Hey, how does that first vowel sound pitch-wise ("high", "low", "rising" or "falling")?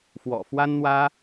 low